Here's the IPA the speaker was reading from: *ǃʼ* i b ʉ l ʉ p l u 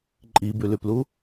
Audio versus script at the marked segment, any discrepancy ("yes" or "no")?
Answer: no